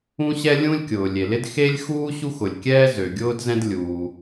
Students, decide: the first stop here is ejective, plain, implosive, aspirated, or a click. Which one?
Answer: plain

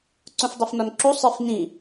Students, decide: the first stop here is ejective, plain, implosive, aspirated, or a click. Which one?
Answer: click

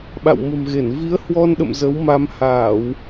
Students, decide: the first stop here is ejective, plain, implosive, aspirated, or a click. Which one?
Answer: implosive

